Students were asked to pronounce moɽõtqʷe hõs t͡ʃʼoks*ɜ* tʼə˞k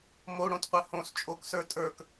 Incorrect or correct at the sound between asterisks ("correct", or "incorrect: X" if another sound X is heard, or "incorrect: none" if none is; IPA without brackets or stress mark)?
incorrect: ə˞